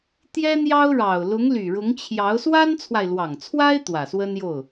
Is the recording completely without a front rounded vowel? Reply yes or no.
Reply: no